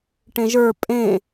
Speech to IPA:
ʈ ẽ ʒ ə˞ pʼ ẽ

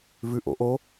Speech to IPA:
v ʉ ʔ o̰ ʔ o

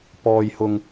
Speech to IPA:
p ɔː˥ j h ʊ˥ ŋ

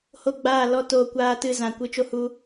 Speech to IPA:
h o˦˨ ɡ͡b aː˦˨ l ɔ˦ t oː˧ kʷ aː˦ t ɨ˦˨ z ã˨ kʷ ɨ˧ t͡ʃ o˧ h u˧

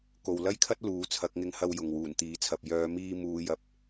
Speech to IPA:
k o˨ w l ɐ˥ j kʰ ɐ˥ t̚ l uː˨˥ t͡sʰ ɐ˨˥ k̚ ŋ ɪ˧ ŋ h ɐ˧ w j ʊ˨ ŋ w uː˨˩ n t̪ iː˨˥ t͡sʰ ɐ˨ p̚ j œː˨˧ m iː˧ m uː˨˧ j ɐ˨˥ p̚

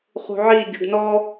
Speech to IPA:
χ ṳ ʕ i ɟ ɵ ɖ n ɔ

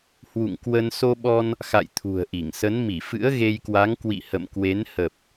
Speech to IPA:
h w ṵ˧˨ ŋ k w ə˧ n s o˧ ɓ ɔ˧ n | x a̰˧˨ j t̪ʰ ṳ˨˩ ə̯ ʔ i˧˩ ŋ s ə˨˦ n m i˧˩ f ɨ̰˧˥ ə̯ ɣ e˧ j k w a˨˦ ŋ k w ḭ˧˨ h ə̰˧˨ m k w e˨˦ n h ə˨˩ p̚

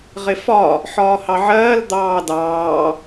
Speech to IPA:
ʁ ɪ f ɒ | ħ ɒː h ɑ ʕ ɜː l d̪ ɑː d ɑː

